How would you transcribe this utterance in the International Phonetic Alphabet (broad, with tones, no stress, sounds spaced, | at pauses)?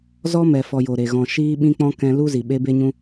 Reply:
z ɔ˦ m ɛ˨ f ɔ˨ j o˨ ɾ e˨ ɣ ɔ̃˨ ʃ iː˧ ɓ ĩ˧ k͡p ɔ̃˧ k ɛ̃˧ l u˦ z i˨ ɓ e˦ b e˦ ɲ ũ˦